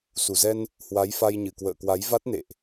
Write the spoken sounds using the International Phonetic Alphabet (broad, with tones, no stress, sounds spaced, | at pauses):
s u˧˩ z ɛ˧ n | h w a˨˦ j f a˧ j ɲ ɨ˧˩ k w ə̰ː˧˨ k w a˨˦ j v a˦˥ t̚ n ḛ˧˨ ʔ